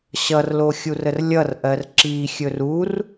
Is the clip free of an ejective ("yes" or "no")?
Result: yes